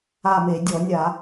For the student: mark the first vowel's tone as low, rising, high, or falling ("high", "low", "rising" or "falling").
falling